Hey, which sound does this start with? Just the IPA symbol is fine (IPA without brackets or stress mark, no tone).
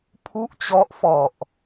pʰ